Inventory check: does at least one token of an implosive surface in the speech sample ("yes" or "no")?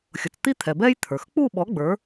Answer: yes